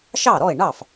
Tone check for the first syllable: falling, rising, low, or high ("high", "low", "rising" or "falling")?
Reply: falling